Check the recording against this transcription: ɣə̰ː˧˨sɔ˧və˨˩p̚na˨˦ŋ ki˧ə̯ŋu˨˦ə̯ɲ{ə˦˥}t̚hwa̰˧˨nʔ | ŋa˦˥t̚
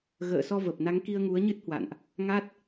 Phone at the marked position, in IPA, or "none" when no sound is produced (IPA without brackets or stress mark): ɨ˦˥